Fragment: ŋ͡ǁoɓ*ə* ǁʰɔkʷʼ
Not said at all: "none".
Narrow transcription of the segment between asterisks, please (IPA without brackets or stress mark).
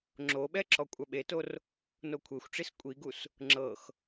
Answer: ɛ